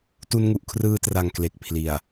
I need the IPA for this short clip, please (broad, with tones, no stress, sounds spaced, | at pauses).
t u˧ n ŋ u˨˩ ʔ kʰ r ɯː˧ t r a˨˩ ŋ k l e˨˩ k̚ pʰ l i˨˩ a̯